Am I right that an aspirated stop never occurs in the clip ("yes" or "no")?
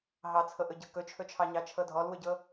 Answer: no